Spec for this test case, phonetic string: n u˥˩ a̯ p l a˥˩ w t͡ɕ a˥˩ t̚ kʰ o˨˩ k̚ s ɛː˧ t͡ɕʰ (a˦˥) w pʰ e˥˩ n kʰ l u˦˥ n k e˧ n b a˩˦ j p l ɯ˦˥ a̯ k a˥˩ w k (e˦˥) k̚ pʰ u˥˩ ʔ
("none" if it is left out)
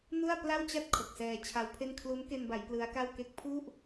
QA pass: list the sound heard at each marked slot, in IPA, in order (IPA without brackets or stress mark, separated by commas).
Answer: a˦˥, e˦˥